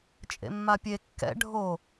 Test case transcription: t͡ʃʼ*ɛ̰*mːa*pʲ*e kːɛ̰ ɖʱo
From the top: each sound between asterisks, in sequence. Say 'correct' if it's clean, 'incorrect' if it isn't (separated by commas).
incorrect, correct